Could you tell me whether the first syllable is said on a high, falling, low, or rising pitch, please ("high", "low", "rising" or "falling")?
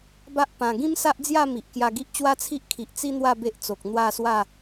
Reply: high